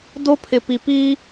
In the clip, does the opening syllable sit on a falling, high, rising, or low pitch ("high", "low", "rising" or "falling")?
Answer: high